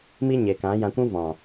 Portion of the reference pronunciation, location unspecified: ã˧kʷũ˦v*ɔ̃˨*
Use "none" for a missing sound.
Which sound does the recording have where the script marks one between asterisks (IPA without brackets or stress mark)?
ɔ̃˨